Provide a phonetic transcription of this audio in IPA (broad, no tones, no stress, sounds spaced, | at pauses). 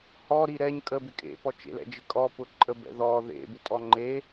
h ɔ ɾ i ɾ ɛ ɲ kʼ ə b ɪ kʼ ḛ p ɔ t͡ʃ ḛ l ɛ̰ d͡ʒ ɪ kʼ ɔ p ʊ ǃʼ ə b ɛ̰ ð ɔ ð ḛ b ɪ tʼ ɔ ŋ͡ǃ e